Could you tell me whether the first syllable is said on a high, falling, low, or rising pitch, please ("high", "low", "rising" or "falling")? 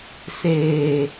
low